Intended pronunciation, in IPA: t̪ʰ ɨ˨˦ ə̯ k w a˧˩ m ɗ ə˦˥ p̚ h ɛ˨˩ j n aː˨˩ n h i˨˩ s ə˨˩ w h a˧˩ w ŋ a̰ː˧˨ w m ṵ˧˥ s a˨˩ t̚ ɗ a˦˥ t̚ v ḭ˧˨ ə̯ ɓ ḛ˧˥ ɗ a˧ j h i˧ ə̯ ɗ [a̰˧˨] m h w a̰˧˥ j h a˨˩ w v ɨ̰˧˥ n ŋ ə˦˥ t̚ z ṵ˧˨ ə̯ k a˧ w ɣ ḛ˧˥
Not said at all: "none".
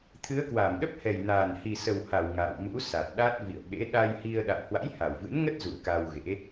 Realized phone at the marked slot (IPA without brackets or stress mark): a̰˧˨